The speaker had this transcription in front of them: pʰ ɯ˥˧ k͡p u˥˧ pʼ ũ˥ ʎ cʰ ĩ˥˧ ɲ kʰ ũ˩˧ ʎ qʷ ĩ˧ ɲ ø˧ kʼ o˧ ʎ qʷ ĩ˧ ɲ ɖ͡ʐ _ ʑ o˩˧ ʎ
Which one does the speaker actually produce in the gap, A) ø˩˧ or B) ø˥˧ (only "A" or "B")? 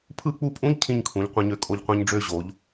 B